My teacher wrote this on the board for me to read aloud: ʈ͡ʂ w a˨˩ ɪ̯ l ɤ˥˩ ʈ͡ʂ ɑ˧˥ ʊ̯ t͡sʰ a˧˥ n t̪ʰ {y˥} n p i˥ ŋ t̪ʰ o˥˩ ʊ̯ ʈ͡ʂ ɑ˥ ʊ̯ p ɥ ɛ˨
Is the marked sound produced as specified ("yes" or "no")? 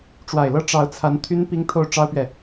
yes